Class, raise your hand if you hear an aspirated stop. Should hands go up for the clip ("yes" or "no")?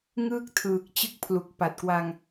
yes